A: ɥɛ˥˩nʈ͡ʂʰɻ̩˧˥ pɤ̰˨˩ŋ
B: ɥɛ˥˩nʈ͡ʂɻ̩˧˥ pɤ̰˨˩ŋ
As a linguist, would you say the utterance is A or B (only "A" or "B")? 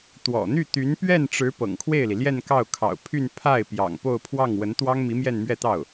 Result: B